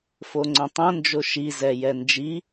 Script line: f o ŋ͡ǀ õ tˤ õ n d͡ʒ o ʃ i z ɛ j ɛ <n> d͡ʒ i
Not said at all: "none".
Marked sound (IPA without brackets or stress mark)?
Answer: n